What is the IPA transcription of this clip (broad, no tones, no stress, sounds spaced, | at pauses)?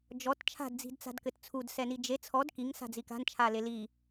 d͡ʒ ɔ t t͡ʃʰ a̤ d d͡z i̤ d t͡s a̤ d k ɘ t t͡sʰ u d s ɛ n i d͡ʒ e t͡sʰ ɔ d k i ŋ s a̤ d͡z i k a̤ n t͡ʃʰ a l e l i